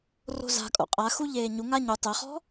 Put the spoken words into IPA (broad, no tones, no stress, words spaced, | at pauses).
ro̤za̤kʼo̰ qʼaxu ʎeːɲuŋa ɲu tˤeχɔ̤